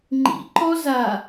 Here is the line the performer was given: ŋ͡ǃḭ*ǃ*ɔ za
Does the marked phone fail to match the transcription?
no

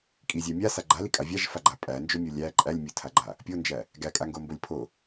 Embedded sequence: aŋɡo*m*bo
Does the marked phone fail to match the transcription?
no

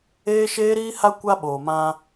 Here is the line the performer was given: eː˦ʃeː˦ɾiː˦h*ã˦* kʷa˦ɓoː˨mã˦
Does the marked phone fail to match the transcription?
yes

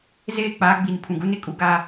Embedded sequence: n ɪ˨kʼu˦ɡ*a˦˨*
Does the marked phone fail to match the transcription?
yes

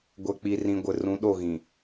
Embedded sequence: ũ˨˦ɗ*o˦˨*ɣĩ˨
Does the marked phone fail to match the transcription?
no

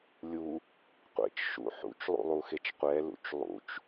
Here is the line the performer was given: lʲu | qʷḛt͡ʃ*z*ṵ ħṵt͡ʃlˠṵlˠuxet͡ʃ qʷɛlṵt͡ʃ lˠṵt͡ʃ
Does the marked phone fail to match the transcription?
yes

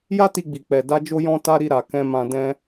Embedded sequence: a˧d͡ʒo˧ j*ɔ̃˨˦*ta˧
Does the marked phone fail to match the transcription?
yes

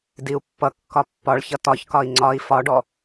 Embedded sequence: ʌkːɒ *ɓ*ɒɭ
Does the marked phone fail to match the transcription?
yes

